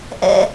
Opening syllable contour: high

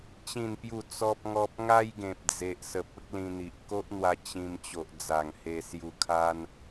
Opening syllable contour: falling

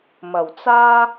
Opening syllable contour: low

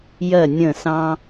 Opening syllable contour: falling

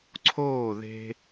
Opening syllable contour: falling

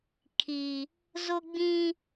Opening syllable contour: low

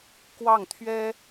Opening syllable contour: falling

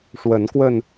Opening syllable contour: rising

